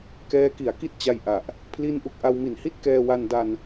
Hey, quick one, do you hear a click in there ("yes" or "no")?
no